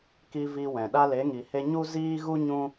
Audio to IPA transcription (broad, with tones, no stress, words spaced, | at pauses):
ki˧ vi˧wɛ̃˨ ɗa˧le˨˦ŋi˨he˧ ɲu˦ ziː˦ɣu˦ ɲũ˦